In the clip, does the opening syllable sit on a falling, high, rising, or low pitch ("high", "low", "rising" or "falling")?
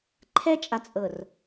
high